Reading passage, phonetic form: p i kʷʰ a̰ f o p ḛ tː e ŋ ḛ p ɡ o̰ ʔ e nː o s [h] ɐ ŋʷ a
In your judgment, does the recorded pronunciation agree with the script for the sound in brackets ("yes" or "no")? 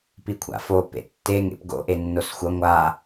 no